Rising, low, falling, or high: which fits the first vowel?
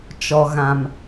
low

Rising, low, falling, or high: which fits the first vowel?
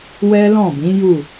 high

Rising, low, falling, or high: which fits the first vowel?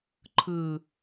low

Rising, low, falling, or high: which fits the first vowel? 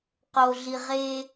low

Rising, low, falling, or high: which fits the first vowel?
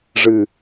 low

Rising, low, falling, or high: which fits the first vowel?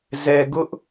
low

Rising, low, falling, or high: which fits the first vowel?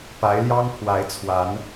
rising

